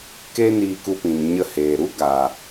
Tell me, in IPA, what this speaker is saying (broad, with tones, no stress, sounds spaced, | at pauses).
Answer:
k e˦ n iː˧ k u˧ p ĩ˨ n ɲ ə˧ h eː˨ ɾ u˦ ɡ a˨